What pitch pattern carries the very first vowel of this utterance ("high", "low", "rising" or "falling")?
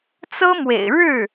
high